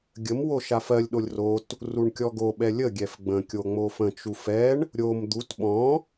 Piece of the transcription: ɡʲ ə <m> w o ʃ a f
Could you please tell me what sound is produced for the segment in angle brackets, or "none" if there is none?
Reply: m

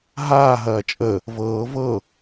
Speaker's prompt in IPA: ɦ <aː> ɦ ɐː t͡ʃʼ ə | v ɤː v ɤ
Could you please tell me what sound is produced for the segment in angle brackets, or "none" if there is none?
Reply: aː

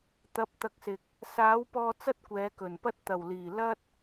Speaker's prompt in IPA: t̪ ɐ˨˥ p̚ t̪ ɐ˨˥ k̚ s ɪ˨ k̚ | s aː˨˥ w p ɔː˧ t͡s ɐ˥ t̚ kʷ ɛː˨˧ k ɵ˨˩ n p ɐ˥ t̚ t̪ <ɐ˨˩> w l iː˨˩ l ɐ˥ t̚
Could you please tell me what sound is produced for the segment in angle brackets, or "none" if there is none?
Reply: ɐ˨˩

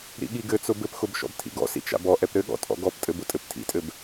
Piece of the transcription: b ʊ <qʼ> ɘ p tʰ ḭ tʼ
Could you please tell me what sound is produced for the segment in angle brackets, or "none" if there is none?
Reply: tʼ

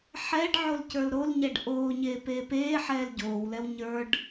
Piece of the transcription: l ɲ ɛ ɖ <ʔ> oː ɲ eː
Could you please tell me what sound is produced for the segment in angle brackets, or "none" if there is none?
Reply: ʔ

